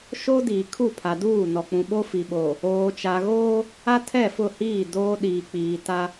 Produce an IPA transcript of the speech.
ʃ o˦ d iː˨ kʰ u˦˨ pʰ a˨ d uː˦˨ n ɔ˨ k͡p ũ˨ ɓ o˦ f i˨ ɓ oː˨ | oː˨ t͡ʃ a˨ ɣ oː˦ | a˦ tʰ ɛ˦˨ f ʊ˦˨ h iː˦˨ d oː˦ ɗ iː˨ k͡p iː˨ t a˦

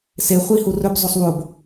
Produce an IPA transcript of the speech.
s e χʷ i h u r ɵ b zˤ o sˤ w o b

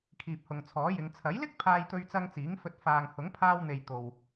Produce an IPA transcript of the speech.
kʰ iː˨ p̚ h ʊ˨ ŋ t͡sʰ ɔː˨˥ j ɪ˨˧ ŋ t͡sʰ ɐ˨˥ j l ɪ˥ k̚ pʰ aː˧ j t̪ ɵ˧ ɥ t͡s ɐ˧ ŋ t͡s iː˨˥ ŋ f ɵ˧ t̚ f aː˨ ŋ h ʊ˨˥ ŋ pʰ aː˧ w n̪ e˨ j t̪ o˨ w

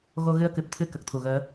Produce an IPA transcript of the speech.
ɣ o˧ ɣ ɨ˧ ə̯ k ɨ˨˩ p̚ t̪ʰ ɨ˧ k ə˨˩ k̚ t̪ʰ u˨˩ ɣ əː˧˥

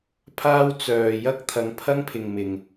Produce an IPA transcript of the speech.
pʰ aː˥ w t͡s œː˨ j ɐ˥ k̚ t̪ʰ ɐ˨˧ ŋ pʰ ɐ˥ ŋ pʰ ɪ˨ ŋ m ɪ˨ ŋ

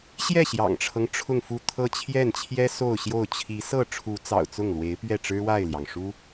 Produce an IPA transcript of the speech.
ɕ j ɛ˥˩ ɕ j ɑ̰˨˩ ŋ ʈ͡ʂʰ ɤ˦ ŋ ʈ͡ʂʰ ʊ˥˧ ŋ f u˥˧ t̪ʰ ɤ˥˧ t͡ɕʰ j ɛ˥˩ n t͡ɕʰ j ɛ˥ s o˥˧ ʊ̯ ɕ j o˥˩ ʊ̯ t͡ɕʰ i˧˥ s ɤ˥˩ ʈ͡ʂʰ u˧˥ t͡s ɑ̰˨˩ ʊ̯ t͡s ʊ˥˩ ŋ l w e˧˥ ɪ̯ p ɥ ɛ˥˩ ʈ͡ʂ ɻ̩˥ w a˥˩ ɪ̯ l j ɑ˩ ŋ ʂ u˥

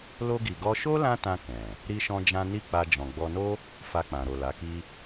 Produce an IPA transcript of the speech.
l o˧ ɡ i˨ ɡ ɔ˧ ʃ o˦ l ã˦ t ã˧ k ɛ̃˨ | ɾ i˦ ʃ ɔ̃˦ d͡ʒ ã˦ n i˦˨ k͡p a˧ d͡ʒ ɔ̃˨ ɡ͡b ɔ˧ n o˦ | f a˧ k͡p ã˨ ɾ o˨ l a˨˦ k i˦

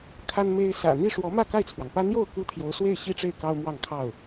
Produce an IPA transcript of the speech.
kʰ a˥ n m e˥ ɪ̯ s ä̰˨˩ n̪ i˥˩ ʂ w ɔ˧˥ m ä˥˧ k a˥˩ ɪ̯ t͡sʰ w ɑ˩ ŋ p ä˥ n̪ j o˥˩ ʊ̯ k u˥ t̪ʰ j o˧˥ ʊ̯ s w e˥˩ ɪ̯ ɕ i˥ ʈ͡ʂ e˥˩ ɪ̯ k ɑ˥ ʊ̯ m w ɑ˥˧ ŋ kʰ ɑ˥˩ ʊ̯

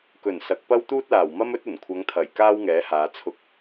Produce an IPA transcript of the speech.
k ɵ˨˩ n s ɐ˨˥ k̚ p ɐ˥ w t̪ uː˥ t̚ l aː˨˩ w m ɐ˥ m ɵ˥ t̚ ɵ˨˩ n kʷʰ ɐ˨˧ ŋ t̪ʰ ɐ˨˩ j k aː˥ w ŋ ɛː˨˥ h aː˨˧ t͡sʰ ʊ˨˥ k̚

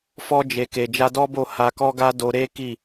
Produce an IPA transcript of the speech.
f ɔ˧ d͡ʒ e˨ k e˨ d͡ʒ a˧ d ɔ˦ b o˦˨ h a˧ k ɔ˦ ɡ a˦ d o˧ ɾ e˦ k i˦˨

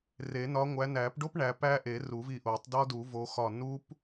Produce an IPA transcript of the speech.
r e˨˩˦ n ɒ˨˦ ŋʷ æ˨˦ n æ˨˩˦ p ɖ o˦˥ p ɳ æ˨˦ p æ˦˥ ʔ e˨˩˦ r u˨˩˦ v i˧˩ ʔ o˨˩˦ tˤ d ɒ˦˥ d u˨˩˦ v o˨˦ x ɒ˧˩ n u˦˥ p

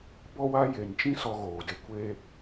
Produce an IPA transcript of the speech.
b ɔ˦ w a˦ j e˨ n t͡ʃ ĩ˦ s ɔ˧ ɣ oː˨ d e˧ kʷ e˦

